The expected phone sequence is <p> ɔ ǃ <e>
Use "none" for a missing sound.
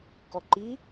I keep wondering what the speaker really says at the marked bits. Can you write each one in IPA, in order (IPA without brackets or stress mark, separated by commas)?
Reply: k, i